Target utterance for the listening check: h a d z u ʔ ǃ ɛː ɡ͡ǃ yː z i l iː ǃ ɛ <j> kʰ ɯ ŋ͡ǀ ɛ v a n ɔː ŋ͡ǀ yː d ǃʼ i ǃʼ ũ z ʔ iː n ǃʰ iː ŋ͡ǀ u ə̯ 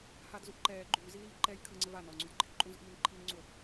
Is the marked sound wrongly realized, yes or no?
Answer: no